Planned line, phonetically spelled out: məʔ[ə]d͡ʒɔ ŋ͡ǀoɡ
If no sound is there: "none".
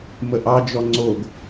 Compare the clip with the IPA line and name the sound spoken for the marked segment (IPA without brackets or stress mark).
ɑ